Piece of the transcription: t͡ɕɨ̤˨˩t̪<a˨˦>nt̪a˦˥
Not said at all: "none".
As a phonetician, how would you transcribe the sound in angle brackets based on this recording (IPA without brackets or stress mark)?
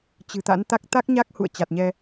a̰˧˥